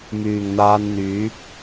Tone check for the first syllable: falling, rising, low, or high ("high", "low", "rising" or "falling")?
low